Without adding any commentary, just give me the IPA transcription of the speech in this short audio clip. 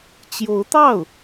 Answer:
t͡ɕ j o˧˥ ʊ̯ t̪ ɑ˥˩ ʊ̯

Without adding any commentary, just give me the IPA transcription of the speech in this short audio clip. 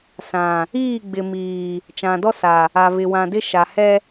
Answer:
s ã˨ | iː˦˨ ɡ͡b ɪ˨ m iː˨ | t͡ʃ ã˨ d ɔ˦ s a˨ | a˨ β ɪ˨ w ã˨ d ɪ˦ ʃ a˨ h ɛ˦

